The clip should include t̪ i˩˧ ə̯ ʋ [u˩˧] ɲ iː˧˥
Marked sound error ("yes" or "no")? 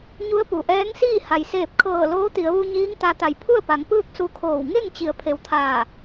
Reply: yes